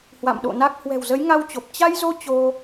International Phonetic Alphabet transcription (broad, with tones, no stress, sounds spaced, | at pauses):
h w a̰˧˨ m ɗ o̰˧˨ n a˦˥ k̚ h w ɛ̤˨˩ w z ə˨˦ j ŋ a˧ w t͡ɕ o˨˩ p̚ t͡ɕ a˧ j z o˧ t͡ɕ o˧